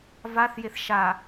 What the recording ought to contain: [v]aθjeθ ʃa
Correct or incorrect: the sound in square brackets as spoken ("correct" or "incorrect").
correct